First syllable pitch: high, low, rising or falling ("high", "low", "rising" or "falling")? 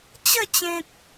falling